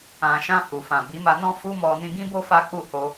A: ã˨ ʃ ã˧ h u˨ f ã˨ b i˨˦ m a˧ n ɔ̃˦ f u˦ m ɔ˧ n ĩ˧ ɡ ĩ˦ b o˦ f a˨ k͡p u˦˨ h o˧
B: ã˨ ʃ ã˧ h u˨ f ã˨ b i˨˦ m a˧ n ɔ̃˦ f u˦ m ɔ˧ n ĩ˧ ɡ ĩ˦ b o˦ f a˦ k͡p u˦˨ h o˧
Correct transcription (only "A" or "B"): B